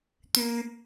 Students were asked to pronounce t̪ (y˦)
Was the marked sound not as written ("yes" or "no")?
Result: no